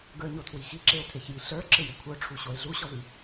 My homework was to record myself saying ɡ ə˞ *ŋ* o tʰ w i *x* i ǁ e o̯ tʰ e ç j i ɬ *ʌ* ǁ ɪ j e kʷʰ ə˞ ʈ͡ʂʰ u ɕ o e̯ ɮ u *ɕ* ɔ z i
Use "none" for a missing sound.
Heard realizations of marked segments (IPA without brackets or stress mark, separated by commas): ɲ, x, ə˞, ɕ